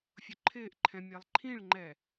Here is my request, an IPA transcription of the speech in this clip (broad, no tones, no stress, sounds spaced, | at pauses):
fʲ ʊ ǃʰ ɪː ʔ ǃʰ ɛ̃ mʲ ɛ lˠ ǃʰ ĩ ɭ ŋ͡ǃ ɛ